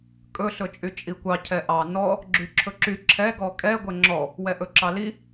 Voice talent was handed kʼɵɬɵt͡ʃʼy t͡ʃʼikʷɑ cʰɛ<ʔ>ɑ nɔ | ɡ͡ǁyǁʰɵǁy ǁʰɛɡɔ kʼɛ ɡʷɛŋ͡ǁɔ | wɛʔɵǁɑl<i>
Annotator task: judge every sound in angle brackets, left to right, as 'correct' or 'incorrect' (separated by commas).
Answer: correct, correct